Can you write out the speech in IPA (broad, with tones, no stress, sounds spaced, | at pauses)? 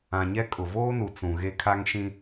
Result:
ã˨ ɲ ɛ˦ kʼ ʊ˨ v oː˦ n u˨ t͡s ũ˨ ɣ e˦ kʰ a˦ ŋ ʃ ĩ˦